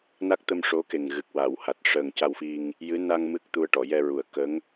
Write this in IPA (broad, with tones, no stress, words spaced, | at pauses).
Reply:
na˦˥k̚ t̪ə˧m ʂo˧˥ke˨˩ŋɣɨ˨˩k̚ wa˨˩˨wha˨˩t̚ ʂəː˨˩ŋca˧wfi˧ŋ | jɨ˧˥ na˧ŋ mɨ˦˥k̚t̪u˧ə̯ʈɔ˨˩˨ jɛ˧ɹu˨˩ə̯ kə˧˥ŋ